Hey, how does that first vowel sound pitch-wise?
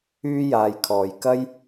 high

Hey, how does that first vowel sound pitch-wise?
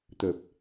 low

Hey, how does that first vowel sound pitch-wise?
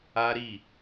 high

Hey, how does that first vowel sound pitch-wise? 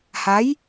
rising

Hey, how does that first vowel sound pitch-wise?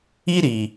high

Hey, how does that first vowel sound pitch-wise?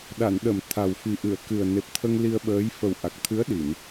low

